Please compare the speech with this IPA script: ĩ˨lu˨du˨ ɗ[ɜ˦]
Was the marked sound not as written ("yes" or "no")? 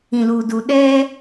yes